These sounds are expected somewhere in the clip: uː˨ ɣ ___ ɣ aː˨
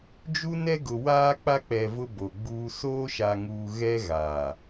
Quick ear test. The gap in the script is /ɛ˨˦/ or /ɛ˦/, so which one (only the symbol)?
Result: ɛ˦